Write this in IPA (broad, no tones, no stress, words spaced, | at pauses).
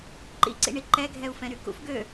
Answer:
ǃḭǀḭɳi ǃɛɡʱɛu̯fɛ̃ɾy kṵf ɡø